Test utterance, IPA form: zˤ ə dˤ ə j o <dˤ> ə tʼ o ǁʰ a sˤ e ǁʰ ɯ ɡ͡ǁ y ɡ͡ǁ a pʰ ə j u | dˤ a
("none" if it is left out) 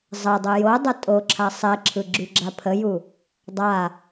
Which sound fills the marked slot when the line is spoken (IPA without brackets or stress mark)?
dˤ